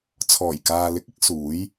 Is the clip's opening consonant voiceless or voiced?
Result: voiceless